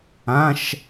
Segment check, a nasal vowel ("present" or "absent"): present